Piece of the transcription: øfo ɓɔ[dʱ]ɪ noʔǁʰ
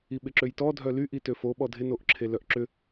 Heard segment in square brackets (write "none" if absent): dʱ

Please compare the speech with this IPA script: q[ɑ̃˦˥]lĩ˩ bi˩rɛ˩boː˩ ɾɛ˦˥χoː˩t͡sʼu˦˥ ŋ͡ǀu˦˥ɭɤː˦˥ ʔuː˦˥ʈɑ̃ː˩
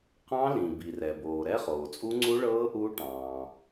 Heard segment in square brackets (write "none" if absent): ɑ̃˦˥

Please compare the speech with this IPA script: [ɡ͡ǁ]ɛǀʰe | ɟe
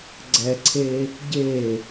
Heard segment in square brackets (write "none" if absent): ɡ͡ǀ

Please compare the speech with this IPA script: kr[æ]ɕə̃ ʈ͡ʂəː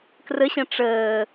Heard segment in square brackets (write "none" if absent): ə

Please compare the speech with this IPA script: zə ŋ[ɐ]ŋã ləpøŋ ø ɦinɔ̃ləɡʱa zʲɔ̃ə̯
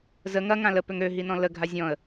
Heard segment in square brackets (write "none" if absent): ɐ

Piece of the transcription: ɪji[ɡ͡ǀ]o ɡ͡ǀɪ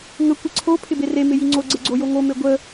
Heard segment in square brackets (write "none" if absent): ŋ͡ǀ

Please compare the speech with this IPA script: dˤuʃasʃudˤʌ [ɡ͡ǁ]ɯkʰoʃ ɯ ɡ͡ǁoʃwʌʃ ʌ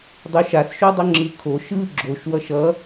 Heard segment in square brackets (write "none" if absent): ŋ͡ǁ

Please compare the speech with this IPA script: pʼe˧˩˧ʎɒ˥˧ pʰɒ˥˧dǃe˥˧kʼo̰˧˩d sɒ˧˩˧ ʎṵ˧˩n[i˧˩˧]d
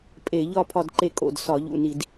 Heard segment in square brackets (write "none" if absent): i˧˩˧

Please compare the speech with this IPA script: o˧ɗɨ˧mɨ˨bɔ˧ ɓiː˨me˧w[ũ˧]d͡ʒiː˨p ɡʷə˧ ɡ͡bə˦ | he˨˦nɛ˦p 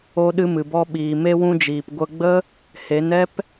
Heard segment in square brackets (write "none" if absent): ũ˧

